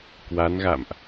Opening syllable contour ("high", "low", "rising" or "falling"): rising